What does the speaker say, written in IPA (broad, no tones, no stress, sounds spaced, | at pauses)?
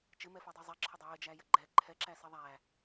t͡ʃ ɪ m ɛ f ɛ dˤ i zˤ e ǁʰ ə dˤ ɛ j ɪ d͡ʒ æ j ə ɡ͡ǃ ɛ ǃʰ ɛ ǁ æ s i ðˤ æ